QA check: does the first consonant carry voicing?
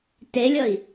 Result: no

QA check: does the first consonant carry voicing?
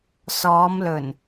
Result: no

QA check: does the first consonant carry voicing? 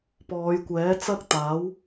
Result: no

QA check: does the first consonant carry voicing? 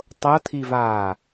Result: no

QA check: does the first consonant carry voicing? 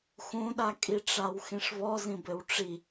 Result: no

